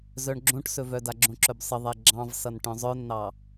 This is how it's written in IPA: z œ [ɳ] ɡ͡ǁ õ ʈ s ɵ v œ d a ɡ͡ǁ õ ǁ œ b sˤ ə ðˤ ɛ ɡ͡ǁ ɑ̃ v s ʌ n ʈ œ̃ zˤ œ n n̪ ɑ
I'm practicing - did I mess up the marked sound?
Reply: no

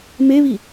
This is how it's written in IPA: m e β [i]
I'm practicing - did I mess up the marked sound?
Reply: no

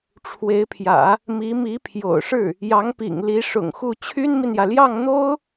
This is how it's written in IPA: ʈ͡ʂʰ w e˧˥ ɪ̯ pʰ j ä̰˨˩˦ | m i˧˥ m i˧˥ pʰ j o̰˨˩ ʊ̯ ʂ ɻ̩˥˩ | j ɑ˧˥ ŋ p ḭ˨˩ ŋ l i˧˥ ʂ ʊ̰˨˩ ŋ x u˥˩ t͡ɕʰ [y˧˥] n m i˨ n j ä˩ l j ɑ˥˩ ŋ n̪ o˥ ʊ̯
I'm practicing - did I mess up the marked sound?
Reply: yes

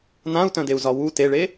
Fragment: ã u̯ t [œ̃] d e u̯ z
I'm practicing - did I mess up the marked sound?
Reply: no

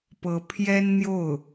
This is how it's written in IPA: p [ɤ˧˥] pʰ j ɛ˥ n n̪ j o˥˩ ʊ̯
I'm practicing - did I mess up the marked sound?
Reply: no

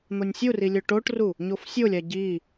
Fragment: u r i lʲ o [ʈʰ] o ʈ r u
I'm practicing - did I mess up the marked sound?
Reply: yes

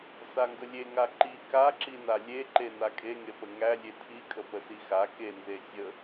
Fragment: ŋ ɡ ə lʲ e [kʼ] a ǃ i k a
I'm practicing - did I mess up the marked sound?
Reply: yes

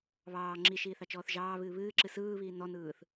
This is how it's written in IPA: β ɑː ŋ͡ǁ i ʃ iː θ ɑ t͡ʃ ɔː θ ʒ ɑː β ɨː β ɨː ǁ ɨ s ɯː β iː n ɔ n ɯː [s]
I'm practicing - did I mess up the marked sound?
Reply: yes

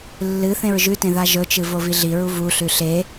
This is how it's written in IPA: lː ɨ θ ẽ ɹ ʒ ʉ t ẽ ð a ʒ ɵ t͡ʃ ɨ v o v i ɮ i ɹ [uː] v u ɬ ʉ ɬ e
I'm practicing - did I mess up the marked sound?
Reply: yes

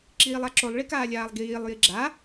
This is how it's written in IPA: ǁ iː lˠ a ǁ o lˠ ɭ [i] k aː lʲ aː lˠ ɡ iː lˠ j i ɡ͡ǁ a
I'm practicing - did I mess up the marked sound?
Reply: no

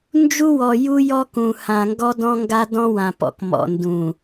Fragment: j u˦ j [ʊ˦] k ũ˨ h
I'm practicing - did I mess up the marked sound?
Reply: yes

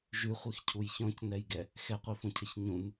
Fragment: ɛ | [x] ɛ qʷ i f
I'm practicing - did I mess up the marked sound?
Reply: no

